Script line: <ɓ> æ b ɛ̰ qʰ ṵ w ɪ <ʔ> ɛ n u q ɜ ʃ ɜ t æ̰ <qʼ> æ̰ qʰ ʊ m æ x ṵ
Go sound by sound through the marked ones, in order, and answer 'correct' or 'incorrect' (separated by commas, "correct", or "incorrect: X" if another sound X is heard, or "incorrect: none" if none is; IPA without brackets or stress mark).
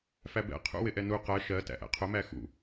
incorrect: f, correct, incorrect: ʔ